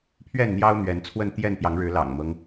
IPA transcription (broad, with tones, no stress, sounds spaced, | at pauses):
pʰ ɥ ɛ˥˨ n n̪ j ɑ˦ ʊ̯ n̪ ɥ ɛ˨˦ n t͡sʰ w ə˥˨ n t̪ j ɛ˥˨ n p j ɑ˨˦ ŋ ɻ ɻ̩˨˦ l ɑ̰˨˩ ŋ m ɤ˦ ŋ